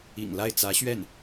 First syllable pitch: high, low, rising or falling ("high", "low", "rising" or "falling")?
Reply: low